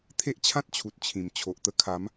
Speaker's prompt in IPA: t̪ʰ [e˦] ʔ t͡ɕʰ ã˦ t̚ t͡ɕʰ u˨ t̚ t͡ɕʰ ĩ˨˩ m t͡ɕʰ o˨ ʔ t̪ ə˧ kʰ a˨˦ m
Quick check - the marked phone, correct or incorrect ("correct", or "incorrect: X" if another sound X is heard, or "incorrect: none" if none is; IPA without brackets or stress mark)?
correct